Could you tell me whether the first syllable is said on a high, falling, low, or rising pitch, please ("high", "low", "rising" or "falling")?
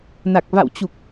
low